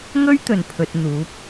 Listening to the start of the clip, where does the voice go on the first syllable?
high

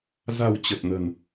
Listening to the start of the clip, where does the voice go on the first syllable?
low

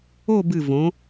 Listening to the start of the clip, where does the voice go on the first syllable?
falling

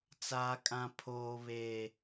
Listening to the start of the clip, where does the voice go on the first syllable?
high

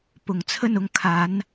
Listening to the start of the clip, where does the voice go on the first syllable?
rising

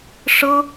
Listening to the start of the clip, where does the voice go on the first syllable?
high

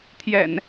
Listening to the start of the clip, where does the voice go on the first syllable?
low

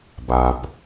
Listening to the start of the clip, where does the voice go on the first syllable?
low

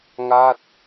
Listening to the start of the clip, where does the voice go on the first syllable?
falling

